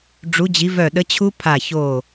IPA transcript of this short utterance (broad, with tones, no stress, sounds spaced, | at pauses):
ɖ͡ʐ u˨˥ d͡ʑ i˨˥ v œ˧˩ ɗ ə˨˥ t͡ɕʰ u˦˥ pʰ a˧˩ ç o˧˩